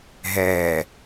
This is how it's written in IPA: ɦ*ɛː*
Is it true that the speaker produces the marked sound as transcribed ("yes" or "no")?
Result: yes